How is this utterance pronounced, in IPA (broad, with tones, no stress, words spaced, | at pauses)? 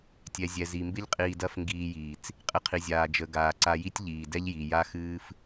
tʲɛ˨zʲɛ˨zi˨mbɪ˦ʎ qʼiː˧dɐ˦fŋɡiː˧jiː˨t͡s | qʼɪ˧qʰi˨zʲaː˨ d͡ʒə˨ɡaː˨ǀa˧ji˦tʲ ʎiː˨dɛ˦ʎji˨ ja˦xɨː˦f